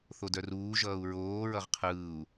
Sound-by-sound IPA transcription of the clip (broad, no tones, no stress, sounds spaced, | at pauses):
θ o d œ r uː ʒ ʌː u̯ ɹ oː ɹ ʌ ʁ qʰ ɯː u̯